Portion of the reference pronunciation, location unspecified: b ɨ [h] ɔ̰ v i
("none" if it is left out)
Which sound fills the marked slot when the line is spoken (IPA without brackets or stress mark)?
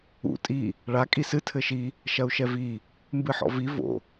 ħ